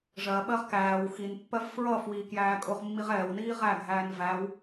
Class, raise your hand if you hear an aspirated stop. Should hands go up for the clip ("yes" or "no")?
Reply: no